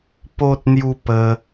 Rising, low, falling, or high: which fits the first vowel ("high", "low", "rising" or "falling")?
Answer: high